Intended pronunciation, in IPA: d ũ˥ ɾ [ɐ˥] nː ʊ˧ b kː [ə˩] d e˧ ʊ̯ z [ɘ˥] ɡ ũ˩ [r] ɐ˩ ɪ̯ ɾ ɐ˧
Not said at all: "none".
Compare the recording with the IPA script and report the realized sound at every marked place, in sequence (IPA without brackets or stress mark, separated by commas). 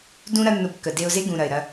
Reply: ɐ˥, ə˩, e˥, ɾ